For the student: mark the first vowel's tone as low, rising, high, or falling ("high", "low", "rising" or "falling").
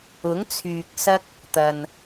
rising